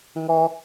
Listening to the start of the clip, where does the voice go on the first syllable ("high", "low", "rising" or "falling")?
high